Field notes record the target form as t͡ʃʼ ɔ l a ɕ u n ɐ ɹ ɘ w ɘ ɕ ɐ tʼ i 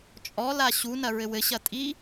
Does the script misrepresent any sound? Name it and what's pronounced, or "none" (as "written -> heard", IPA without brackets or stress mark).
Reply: none